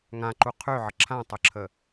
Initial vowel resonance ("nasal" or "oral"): nasal